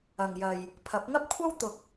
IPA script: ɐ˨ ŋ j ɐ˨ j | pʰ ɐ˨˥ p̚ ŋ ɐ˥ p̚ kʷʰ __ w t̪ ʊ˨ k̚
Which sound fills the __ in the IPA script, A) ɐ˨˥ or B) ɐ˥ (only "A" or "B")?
B